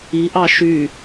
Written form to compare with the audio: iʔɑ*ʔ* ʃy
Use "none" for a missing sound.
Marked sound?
none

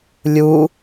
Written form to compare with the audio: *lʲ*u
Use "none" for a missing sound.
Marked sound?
lʲ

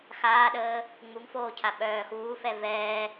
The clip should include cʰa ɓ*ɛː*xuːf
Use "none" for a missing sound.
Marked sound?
œː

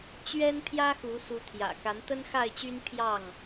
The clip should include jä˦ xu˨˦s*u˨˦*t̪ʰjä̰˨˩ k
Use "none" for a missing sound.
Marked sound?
u˨˦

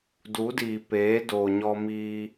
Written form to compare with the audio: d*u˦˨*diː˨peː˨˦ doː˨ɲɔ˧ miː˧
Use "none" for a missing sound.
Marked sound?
u˨˦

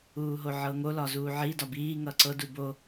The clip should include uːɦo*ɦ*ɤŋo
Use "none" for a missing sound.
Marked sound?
ʕ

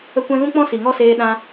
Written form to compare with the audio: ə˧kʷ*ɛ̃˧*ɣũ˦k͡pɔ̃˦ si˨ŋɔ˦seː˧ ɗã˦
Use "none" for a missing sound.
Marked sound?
ɛ̃˧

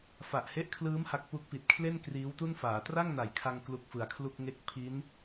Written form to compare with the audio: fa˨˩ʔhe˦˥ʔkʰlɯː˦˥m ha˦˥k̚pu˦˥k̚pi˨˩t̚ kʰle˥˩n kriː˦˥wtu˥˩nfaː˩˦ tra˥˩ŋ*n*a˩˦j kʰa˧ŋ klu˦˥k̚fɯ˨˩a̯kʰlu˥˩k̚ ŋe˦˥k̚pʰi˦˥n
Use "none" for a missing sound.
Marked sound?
n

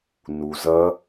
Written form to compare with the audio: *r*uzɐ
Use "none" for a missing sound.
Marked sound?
n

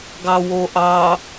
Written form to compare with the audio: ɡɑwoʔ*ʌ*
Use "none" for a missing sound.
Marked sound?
ɑ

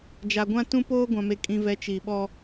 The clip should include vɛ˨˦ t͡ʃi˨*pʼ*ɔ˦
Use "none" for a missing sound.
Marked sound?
ɓ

